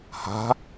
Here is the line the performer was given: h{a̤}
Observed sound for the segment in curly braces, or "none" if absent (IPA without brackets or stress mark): a̤